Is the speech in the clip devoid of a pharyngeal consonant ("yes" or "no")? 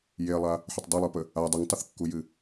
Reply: no